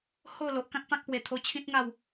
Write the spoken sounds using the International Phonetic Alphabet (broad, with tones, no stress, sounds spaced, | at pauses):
h o˥˧ l o˨ ʔ k ã˦ k̚ p ã˦ k̚ p w e˧ t̪ʰ o˧ t͡ɕʰ ĩ˦ t̚ ŋ a˥˧ w